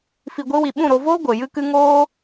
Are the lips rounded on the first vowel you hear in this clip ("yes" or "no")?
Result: no